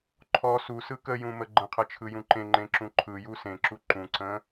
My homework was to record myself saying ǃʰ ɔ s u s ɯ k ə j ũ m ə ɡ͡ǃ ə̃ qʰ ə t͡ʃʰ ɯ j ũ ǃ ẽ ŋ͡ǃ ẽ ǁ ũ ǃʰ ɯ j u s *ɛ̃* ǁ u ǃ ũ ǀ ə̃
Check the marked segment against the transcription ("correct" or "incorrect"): incorrect